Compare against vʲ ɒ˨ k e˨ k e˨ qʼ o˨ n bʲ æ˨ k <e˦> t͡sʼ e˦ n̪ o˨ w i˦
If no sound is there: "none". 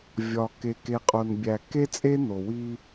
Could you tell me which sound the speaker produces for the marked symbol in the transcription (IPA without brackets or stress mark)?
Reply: e˦